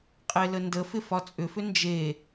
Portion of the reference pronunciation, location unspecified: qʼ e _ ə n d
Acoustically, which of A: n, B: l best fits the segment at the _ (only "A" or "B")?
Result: B